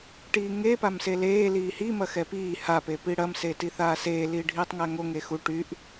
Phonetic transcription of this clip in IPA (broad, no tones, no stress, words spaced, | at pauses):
ʈiːŋe pamseleː liːhi mɐxɛpiː ha pepiɽɐm seːtiθaːseː liːɖʱiːtˤŋæŋo ŋexu ʈyʔ